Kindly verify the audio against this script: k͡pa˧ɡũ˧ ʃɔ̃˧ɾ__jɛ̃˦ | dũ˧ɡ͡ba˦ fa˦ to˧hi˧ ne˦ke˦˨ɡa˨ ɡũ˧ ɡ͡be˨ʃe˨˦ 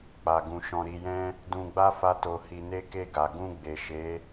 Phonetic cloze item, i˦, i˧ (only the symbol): i˧